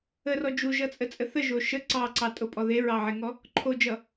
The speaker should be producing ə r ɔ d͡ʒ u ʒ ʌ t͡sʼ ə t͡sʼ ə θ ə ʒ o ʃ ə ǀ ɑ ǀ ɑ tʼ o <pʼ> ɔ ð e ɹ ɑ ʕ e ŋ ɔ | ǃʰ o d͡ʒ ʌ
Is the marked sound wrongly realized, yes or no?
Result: no